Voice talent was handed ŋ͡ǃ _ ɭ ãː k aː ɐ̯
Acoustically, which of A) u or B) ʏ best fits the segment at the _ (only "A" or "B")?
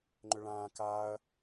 B